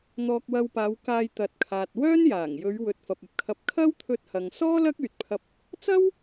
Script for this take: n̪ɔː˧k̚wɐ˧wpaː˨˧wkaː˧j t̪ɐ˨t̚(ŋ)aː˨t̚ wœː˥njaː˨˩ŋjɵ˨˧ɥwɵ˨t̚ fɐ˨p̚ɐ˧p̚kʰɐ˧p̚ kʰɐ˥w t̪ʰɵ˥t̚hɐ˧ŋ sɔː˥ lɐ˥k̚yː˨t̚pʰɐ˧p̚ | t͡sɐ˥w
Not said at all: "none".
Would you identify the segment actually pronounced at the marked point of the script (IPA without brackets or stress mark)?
kʰ